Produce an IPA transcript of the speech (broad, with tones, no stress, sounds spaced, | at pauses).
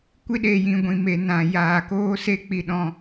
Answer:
kʷ i˦ ɗ e˧ j ĩ˧ ɡʷ ĩ˨ m e˨ n ã˨ j aː˨ k oː˦ s e˦ k͡p i˧ ɗ ɔ̃˧